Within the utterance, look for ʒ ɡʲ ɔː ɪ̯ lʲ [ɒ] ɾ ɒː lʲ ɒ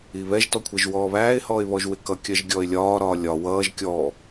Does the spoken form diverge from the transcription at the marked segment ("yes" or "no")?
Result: yes